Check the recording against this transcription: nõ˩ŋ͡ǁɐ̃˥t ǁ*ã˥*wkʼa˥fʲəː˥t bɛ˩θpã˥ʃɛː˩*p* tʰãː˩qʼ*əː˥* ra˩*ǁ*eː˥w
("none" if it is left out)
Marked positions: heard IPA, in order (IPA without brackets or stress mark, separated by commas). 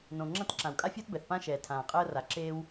ã˩, none, əː˥, ǁ